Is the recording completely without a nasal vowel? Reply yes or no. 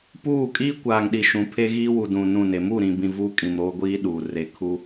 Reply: no